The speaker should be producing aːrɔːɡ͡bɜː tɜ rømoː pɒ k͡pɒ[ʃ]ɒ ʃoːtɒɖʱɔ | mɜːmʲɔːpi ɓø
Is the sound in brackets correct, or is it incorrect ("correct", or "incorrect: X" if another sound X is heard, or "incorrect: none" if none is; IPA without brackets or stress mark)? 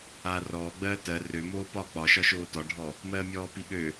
correct